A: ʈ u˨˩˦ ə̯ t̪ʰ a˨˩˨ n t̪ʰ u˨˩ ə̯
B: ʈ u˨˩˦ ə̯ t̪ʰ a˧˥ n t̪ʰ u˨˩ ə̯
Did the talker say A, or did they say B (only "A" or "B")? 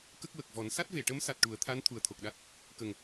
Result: B